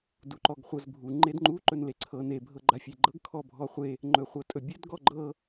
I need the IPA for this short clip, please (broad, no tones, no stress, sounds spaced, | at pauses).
d u ǃ ɔ ɡ χʷ ɤ z bʱ u ŋ͡ǃ e d ŋ͡ǃ u ǃ ɵ n l e ǀʰ ɤ n e bʱ ɤ ɡ͡ǃ a fʲ e ɡ͡ǃ ɤ ɡ kʰ ɔ bʱ ɔ χʷ e | ŋ͡ǃ ɵ χʷ ɤ tʼ ɵ bʲ ɵ d ɡ ɔ ɡ͡ǃ ɤ